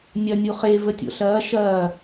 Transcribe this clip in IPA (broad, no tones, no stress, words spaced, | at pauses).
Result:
nʲɐ nʲuχe vətʲo̰ɬɐː ʃɐː